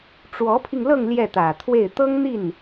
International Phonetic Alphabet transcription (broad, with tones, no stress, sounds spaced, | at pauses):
ʈ͡ʂ w ɔ˧˥ pʰ i˧ ŋ l ɤ˥˧ ŋ l j ɛ˥˩ t̪ ä˨˩ t̪ʰ w e˥˩ ɪ̯ t̪ ɤ˥ ŋ n̪ i˥˩ n